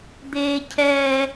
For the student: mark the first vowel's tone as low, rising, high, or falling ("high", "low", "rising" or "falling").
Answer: high